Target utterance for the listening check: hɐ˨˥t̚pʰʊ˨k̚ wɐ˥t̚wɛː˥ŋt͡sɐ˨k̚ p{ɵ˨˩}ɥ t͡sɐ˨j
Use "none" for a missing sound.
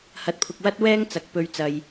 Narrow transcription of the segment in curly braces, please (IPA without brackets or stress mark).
ɵ˧